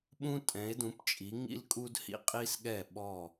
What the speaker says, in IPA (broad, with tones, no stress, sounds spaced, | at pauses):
ɓ ũ˥ tʼ ɛ̃˩˥ e̯ d ũ˩˥ p t͡ʃʼ i˩˥ ŋ ḭ˥ l kʼ u˥ d h ḭ˧ qʼ i˥ s ɠ ɛ˥˩ ɓ ɔ˥˩